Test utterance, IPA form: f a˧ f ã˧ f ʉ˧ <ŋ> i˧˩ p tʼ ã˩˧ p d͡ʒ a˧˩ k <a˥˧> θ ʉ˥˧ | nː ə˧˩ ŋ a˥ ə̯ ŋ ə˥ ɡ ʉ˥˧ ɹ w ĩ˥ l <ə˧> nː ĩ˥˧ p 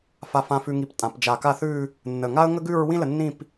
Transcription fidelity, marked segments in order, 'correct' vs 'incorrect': correct, correct, correct

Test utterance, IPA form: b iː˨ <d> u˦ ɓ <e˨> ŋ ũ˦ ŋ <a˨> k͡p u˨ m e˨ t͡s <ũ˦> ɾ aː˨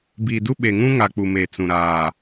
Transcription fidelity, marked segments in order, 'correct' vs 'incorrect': correct, correct, correct, incorrect

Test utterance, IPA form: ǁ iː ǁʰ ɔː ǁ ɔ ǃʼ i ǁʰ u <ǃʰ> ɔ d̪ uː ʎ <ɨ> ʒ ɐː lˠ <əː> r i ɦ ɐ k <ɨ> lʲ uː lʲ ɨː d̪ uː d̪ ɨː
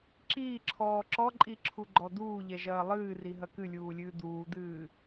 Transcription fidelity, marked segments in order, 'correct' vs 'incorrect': incorrect, incorrect, incorrect, correct

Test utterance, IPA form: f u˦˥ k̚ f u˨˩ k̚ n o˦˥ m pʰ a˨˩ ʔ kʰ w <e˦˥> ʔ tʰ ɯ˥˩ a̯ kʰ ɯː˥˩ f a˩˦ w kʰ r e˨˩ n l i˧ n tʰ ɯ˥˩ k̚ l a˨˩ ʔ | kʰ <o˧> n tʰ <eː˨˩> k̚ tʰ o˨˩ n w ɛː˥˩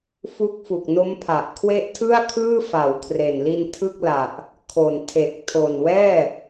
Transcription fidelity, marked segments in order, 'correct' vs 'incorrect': correct, incorrect, incorrect

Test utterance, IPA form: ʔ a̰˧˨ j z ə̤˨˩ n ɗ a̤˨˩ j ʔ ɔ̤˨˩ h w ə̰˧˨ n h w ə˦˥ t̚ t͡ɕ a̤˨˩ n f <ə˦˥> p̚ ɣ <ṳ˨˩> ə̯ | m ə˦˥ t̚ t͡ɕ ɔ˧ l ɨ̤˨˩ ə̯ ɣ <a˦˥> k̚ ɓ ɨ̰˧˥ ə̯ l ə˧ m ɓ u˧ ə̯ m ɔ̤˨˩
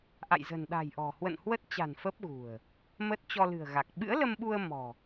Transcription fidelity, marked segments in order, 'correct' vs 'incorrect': correct, correct, incorrect

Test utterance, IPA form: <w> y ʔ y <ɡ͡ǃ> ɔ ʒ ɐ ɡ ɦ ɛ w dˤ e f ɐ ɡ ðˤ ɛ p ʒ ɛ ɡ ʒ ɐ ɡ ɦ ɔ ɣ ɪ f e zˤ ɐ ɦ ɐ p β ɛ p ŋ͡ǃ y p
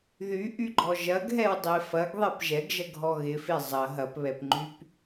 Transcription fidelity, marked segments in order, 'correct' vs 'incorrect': incorrect, correct

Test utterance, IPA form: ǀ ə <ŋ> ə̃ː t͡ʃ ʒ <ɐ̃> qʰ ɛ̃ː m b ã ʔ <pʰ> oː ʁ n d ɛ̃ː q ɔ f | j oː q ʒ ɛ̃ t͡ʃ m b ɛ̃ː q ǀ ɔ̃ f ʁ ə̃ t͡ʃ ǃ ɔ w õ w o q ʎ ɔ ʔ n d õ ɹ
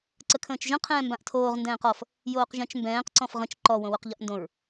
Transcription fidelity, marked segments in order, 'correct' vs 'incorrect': incorrect, incorrect, incorrect

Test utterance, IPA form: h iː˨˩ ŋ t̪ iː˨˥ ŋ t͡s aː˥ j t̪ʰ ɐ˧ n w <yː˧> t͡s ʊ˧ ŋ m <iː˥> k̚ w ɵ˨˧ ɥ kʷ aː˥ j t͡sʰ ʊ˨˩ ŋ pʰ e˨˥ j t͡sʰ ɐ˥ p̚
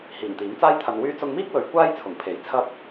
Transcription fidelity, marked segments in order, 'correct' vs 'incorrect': correct, correct

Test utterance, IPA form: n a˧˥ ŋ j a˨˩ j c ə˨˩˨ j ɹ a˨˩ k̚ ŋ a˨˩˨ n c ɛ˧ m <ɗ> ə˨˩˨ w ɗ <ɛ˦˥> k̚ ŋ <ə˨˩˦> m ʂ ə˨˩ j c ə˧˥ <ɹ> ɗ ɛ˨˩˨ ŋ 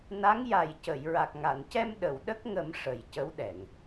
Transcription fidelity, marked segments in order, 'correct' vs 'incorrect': correct, incorrect, correct, incorrect

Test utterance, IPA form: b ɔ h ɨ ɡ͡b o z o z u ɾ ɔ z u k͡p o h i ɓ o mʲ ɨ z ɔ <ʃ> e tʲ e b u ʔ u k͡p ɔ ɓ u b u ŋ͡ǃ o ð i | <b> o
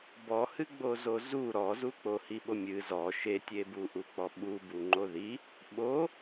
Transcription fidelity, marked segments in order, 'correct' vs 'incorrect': correct, incorrect

